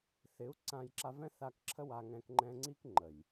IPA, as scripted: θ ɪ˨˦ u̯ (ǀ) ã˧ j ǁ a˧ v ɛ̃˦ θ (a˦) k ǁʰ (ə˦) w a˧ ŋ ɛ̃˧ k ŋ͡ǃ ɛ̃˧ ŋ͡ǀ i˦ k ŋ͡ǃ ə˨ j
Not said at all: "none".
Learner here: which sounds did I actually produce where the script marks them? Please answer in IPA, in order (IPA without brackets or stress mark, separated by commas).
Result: ǀ, a˧, ə˦